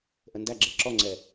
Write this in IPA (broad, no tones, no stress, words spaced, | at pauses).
ʔəndæɡ͡ǁɛ ǁɔŋ͡ǀɛ